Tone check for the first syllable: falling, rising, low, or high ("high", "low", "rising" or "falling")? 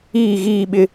falling